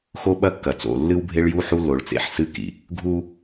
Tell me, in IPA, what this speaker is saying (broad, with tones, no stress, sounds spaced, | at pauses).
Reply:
x o˦ ɓ ɐ˦ kː ɐ˨ t͡s o̰˨ lː ɨ˦ w bʱ e˦ ɭ j u˦ ħ u˦ lː o˨ ɭ t͡s ḛ˨ ħ s ɨ˦ k ḭ˨ | ɡʱ u˦